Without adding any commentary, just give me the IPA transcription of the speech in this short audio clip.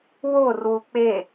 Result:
worwu k͡pe

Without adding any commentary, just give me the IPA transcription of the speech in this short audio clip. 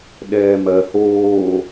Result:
ɗɛːmɜ hoː

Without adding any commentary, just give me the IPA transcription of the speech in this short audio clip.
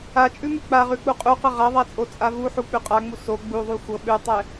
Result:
at͡ʃʼʉmʉ k͡paʁʉk͡pu qʼuqɤ ʁaðˤat͡sʼot͡sʼa vuħuk͡pʉ qʼaŋ͡mu so ɡ͡buðˤu xʷɤ ɓʉtˤɛ

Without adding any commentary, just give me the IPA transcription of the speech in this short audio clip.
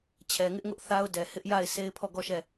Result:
t͡ɕʰɛ˨ŋɪ˦ʔŋʊ˦ʔ θa˦ʊ̯dɛ˨ hɪ˦ʔja˦˨ɪ̯ se˦ɪ̯pʰɔ˦˨ɡɔ˦˨ ʃɛ˦˨

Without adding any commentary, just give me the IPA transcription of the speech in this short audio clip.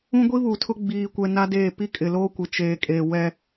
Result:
ũ˦ɡʷi˦βu˨tʰʊ˦ ɡ͡biː˦kʷɛ˦ na˦deː˦˨ pi˦kʼɪ˨loː˦ kʷɪ˨t͡ʃeː˨kʼeː˨wɛ˦

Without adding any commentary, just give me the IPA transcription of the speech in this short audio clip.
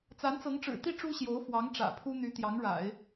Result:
t͡sa˧˥nt͡sɤ˧˥ŋʈ͡ʂɻ̩˨˩t̪i˥˩ ʈ͡ʂu˥ɕjo˧˥ʊ̯fwɑ˧˥ŋ ʈ͡ʂä̰˨˩ pʰu˥n̪y˧˥t̪jɑ˧˥ŋɻa̰˨˩˦ɪ̯

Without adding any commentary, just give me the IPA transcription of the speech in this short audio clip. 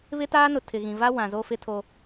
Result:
βɪ˦taː˦nʊ˨ tʰɪ˨ɣĩ˨va˦ wã˨ zo˦fɪ˦tʰo˦

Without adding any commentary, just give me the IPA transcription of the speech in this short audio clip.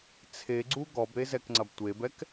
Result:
t͡sʰeɡ͡ǀu ɡɔbɾezɛkŋ͡ǀɐb tʷebɛk

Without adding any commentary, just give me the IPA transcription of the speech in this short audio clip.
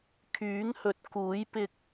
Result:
kʰyː˨˥ŋhɵ˨t̚kuː˨˥j pɪ˧k̚

